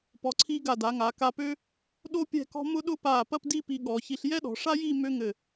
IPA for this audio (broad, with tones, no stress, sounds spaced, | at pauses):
p ɔ˩˧ ǀʰ iː˧ ɡ a˧˩ d a˩˧ ŋ aː˩˧ k a˧ p ø˥ | ɗ o˥ pʲ ɛ̤˥˧ k ɔ̤˥ m ʊ˥ ɗ ʊ˥ p aː˧˩ p ɐ˥˧ p d i˥˧ p i˧ ɠ ɔ˩˧ ç i˧ ɬ j ɛ˥ ɗ ɔ̤˩˧ ʂ a˥ j iː˥˧ m ø˥ ŋ ɘ˧˩